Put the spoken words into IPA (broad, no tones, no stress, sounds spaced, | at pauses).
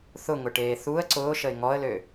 θ ʊ ŋ ʊ ʈ eː θ u ə̯ ǀ ʊː ʃ ə ɪ̯ ŋ ɔ ə̯ l ø